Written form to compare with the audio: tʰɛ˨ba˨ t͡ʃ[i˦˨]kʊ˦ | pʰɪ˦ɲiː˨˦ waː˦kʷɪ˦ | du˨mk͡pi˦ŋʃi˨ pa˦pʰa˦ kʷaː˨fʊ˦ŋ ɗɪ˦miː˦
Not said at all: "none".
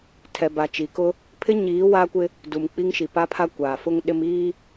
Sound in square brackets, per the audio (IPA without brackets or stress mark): i˨